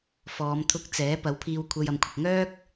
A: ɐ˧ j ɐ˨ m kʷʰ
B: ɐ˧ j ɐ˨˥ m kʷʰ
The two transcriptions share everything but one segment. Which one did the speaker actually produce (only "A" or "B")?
A